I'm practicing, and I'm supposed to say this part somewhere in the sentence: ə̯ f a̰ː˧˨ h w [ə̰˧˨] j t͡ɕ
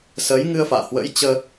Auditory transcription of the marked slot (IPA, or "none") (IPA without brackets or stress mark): ə̰˧˥